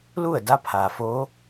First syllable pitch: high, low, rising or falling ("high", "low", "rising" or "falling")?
falling